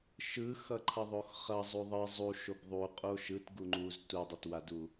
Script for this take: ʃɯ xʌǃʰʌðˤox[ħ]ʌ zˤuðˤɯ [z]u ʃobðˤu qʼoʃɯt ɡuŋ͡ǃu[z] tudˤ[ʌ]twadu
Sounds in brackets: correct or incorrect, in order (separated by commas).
incorrect, incorrect, correct, correct